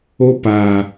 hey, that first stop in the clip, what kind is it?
plain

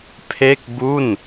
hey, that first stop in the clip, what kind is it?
aspirated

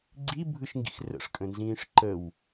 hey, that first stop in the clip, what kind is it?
click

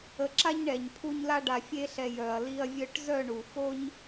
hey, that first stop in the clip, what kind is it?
click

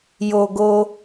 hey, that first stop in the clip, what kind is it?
plain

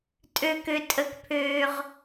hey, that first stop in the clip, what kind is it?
ejective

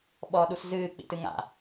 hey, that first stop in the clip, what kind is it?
implosive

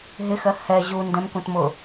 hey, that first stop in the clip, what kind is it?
plain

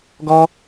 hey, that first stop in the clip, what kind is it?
plain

